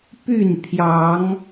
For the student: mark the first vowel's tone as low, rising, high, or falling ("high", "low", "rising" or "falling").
falling